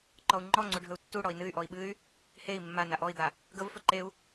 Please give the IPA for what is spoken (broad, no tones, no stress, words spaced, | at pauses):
ǃɔu̯ŋ͡ǃɔŋ͡ǀu ɖʱɵu̯tːuɽɔi̯ nɨy̯ʔɔi̯ ɓɨy̯ | hei̯ mːa naʔɔi̯d̪a | ɡəvfɵ ǃeu̯